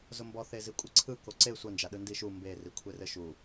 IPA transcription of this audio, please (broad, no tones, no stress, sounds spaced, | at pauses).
z ʊ m b ɔ θ e z i kʷʼ ɘ ǀʰ ɯ k o ǀ e sʷ ɐ n d͡ʒ a ɗ ɯ n d i ʃ u m b e r i kʷʰ e r ɘ ʃ u